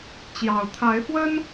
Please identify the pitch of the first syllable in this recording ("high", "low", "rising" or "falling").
low